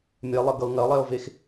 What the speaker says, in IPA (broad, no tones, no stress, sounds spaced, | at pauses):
mʲ ɛ lˠ ə ɡ ʌ ʊ̯ ŋ ɐ lˠ ɛ ʊ̯ v e x